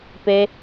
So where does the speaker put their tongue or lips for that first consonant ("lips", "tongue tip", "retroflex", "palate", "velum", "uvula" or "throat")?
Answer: lips